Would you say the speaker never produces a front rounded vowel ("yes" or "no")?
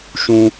yes